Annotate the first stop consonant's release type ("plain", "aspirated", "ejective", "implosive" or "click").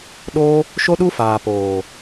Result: implosive